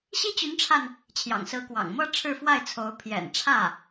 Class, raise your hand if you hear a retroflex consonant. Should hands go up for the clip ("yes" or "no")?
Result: yes